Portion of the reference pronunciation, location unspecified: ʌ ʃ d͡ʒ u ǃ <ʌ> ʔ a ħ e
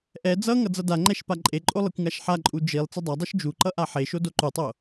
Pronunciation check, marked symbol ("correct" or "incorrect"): correct